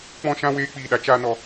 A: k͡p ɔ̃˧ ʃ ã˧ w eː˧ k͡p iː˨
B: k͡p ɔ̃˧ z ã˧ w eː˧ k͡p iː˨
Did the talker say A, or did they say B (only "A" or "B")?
A